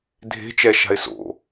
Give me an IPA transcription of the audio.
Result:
dʱ e̤ t͡ʃ ɛ ʃ a̤ ɪ̯ s o̰

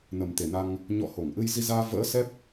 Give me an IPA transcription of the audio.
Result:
n ə˨˩ m t̪ e˨˩ n a˧ ŋ | ɲ ɔ̰˧˨ h o˧˩ ŋ ʔ ɨ˧ j z i˧ z aː˧ v ə̰ː˧˥ s ɛ˦˥ p̚

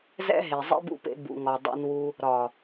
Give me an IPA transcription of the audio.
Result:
z ɛ̰˦ ɦ e˨ zˤ ḛ˦ b ṵ˧ p ḛ˧ b ṵ˨ ŋ ɒ˨ dˤ ḛ˧ n w u˧ | ɾ ɒ˨

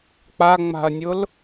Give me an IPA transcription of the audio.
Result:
k͡p a ŋ͡m a̤ ɐ̯ nʲ ʊ l

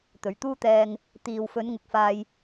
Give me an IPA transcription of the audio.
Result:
t̪ ɵ˨˩ ɥ t̪ uː˥ t̪ ɛː˧ ŋ | t̪ iː˨ w f ɵ˨˧ n ŋ ʊ˨˥ k̚ f aː˧ j

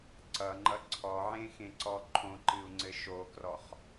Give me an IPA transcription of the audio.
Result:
ǀ ʌ ŋ͡ǃ ʌ ǀʰ ɔ ʕ ẽ x ẽ ǀ ɔ ǃʰ õ ǃ ɨ u̯ ŋ͡ǀ ɘ ʃ o k r ɔ χ

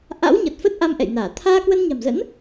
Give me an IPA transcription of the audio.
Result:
ʔ a̰˧˥ w ɲ ə˨˩ t̚ f ə˦˥ t̚ ʔ a˧ m ʔ ɛ̰˧˨ j n aː˧˩ t̪ʰ aː˧ k w ə˧ n ɲ a̤˨˩ m z ə̰˧˥ n

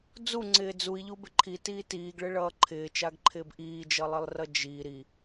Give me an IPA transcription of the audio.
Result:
d͡z u ŋ͡ǀ ɪː d͡z u i̯ ʎ u b ɪ ǃʰ i t iː t iː ɡ ɭ ɪ ɭ ʌː ǃʰ ɪː t͡ʃ a ɡ ǃʰ ɪː b ʔ iː d͡ʒ ʌ lˠ i lˠ r ʌ d͡ʒ i ɾ i

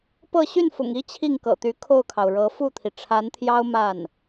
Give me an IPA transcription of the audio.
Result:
p ɤ˥˧ ɕ y˥˩ n f ʊ̰˨˩ ŋ i˥ t͡ɕʰ i˥˩ ŋ k ɤ̰˨˩ t̪ y˧˥ kʰ o˥˩ ʊ̯ kʰ ɑ˩ ʊ̯ ɻ ɤ˧˥ f u˥˩ t̪ʰ i˩ ʈ͡ʂʰ a˧˥ n t̪ʰ j ɑ˥ ʊ̯ m a˥˩ n

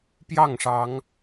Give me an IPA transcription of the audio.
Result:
p j ɑ˥˨ ŋ ʂ ɑ˨˦ ŋ

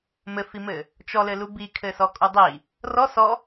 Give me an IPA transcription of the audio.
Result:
m ɘ f i m ɘ | t͡ʃ ɔ l ɘ l u b i kʰ ɘ s ɔ kʼ u dˤ i | r ɔ s ɔ

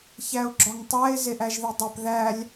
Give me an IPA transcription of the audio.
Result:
ç æ ʊ̯ ɡ͡ǁ ɒ ŋ tˤ æ ɪ̯ z e ʔ æ ʒ ð i dˤ e p ð æ lʲ

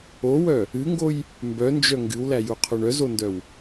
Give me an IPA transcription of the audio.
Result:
o w œ | ɨ ŋ ɡ o j | m b œ n d͡ʒ œ ŋ ɡ ɨ w l æ j u qʰ o ɳ œ z o n d œ w

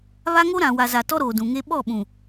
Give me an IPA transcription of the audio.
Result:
β a˦ ŋ o˦ ɾ ã˨ w a˨ z a˨ t ɔ˦ ɾ oː˨ d ũ˨ ŋ e˦ ɓ ɔ˦˨ ɓ ũ˨

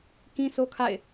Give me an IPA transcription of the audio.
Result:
k ĩ˦ s o˦ kʰ a̰˦˨ ɪ̯

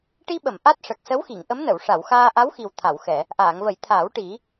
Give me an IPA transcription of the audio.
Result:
ʈ i˧ ɓ ə˨˩˨ m ʔ a˦˥ t̚ ʂ ə˨˩ k̚ s ə˧˥ w x i˨˩˨ ŋ ʔ ə˧˥ m n ə˨˩˨ w ʂ a˨˩˨ w x aː˧ ʔ a˧˥ w x i˨˩ w t̪ʰ a˨˩˨ w x ɛ˨˩˨ | ʔ aː˨˩˨ ŋ v ə˨˩˦ j t̪ʰ aː˨˩˦ w ʈ i˨˩˦

